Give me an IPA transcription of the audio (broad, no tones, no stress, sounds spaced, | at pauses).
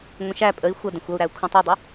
ŋʷ ə̃ ʃ æ pʼ ə i̯ xʷ ʌ d ə̃ xʷ ʌ u̯ ɾ æ u̯ kʰ ũ tˤ u dˤ u